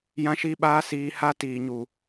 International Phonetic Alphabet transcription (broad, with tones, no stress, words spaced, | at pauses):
jã˧ʃi˧ɓaː˧ siː˧ha˦ tiː˨ɲu˨